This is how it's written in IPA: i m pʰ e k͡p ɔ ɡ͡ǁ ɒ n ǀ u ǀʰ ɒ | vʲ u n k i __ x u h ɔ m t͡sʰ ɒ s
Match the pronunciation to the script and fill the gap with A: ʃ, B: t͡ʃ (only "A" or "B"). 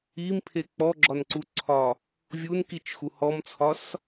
B